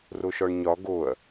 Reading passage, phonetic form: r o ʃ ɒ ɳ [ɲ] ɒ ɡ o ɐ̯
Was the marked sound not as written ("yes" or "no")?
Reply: no